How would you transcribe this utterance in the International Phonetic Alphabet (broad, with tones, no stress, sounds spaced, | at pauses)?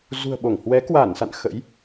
z ṳ˨˩ ə̯ ɓ o˧˩ ŋ h w ɛ˨˦ k w a˧˩ n s a̰˧˨ n x ə̰˧˥ j